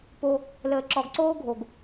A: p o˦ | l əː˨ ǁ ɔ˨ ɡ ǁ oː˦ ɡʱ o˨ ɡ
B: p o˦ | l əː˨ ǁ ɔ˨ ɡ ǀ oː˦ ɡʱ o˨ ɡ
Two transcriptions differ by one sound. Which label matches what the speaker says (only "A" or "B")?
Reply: B